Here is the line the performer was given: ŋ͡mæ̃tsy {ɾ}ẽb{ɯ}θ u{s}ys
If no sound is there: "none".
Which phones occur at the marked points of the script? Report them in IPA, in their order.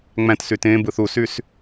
t, ɯ, s

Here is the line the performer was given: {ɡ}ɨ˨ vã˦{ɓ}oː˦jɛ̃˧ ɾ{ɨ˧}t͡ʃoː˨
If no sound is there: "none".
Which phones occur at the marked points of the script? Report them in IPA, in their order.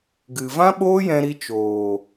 ɡ, ɓ, i˧

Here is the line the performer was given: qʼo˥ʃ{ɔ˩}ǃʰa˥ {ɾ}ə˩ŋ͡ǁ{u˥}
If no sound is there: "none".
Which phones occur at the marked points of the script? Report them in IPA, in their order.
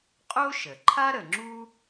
ə˩, ɾ, u˥

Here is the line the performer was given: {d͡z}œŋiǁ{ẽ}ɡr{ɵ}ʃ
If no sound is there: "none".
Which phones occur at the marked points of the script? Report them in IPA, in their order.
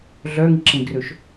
ɮ, ẽ, ɵ

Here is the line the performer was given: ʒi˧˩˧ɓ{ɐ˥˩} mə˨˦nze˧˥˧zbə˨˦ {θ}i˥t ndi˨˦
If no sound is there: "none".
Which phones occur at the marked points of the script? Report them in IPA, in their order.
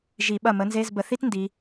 ɐ˥˩, θ

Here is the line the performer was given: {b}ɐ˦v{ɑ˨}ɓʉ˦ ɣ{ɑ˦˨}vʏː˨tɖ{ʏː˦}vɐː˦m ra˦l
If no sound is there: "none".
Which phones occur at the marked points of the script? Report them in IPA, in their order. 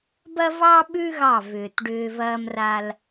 b, ɑ˦, ɑ˦˨, ʏː˦

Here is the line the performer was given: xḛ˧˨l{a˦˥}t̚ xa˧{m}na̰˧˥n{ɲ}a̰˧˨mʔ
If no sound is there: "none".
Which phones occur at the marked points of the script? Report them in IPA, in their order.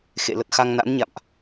ə˦˥, ŋ, ɲ

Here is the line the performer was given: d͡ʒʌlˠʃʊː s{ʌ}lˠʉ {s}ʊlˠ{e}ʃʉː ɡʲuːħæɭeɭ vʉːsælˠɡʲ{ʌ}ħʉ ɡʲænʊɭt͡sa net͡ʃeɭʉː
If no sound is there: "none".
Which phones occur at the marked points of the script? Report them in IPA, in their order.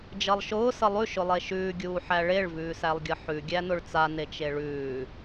ʌ, ʃ, e, ʌ

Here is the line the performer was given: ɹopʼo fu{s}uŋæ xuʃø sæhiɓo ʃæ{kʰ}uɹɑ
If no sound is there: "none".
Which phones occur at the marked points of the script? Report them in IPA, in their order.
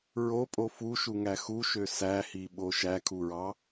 ʃ, kʰ

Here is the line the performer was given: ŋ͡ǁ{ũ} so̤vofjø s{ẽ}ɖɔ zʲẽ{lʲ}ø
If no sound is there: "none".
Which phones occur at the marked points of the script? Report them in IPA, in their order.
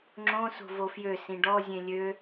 õ, ĩ, lʲ

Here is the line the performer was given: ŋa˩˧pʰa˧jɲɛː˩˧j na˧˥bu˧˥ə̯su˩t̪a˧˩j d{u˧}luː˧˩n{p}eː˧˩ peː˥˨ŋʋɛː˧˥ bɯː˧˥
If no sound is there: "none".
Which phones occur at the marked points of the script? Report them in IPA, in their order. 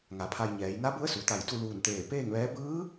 u˥˨, t̪

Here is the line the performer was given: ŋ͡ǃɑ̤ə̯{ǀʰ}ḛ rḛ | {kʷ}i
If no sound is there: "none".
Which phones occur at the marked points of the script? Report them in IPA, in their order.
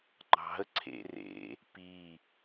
ǀʰ, p

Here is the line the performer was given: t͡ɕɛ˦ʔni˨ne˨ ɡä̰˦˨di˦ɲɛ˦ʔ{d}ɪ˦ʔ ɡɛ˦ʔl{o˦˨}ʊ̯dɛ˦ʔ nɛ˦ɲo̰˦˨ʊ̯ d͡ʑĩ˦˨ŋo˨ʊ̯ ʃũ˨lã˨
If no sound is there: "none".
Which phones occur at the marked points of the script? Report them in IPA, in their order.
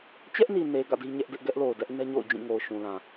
d, o˨

